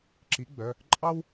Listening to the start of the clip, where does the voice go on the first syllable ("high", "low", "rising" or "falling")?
rising